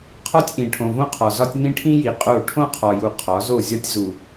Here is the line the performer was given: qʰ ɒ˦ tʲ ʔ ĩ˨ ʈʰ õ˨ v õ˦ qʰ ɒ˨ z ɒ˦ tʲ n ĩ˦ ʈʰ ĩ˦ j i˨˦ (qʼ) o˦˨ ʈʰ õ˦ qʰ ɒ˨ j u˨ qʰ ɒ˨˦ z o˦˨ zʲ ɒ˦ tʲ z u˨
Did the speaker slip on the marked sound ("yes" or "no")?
no